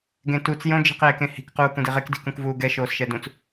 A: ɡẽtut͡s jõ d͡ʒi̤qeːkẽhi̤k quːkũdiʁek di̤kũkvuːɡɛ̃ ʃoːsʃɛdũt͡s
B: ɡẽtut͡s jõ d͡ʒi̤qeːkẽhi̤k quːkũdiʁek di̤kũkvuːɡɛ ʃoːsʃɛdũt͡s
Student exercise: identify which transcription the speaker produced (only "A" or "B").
B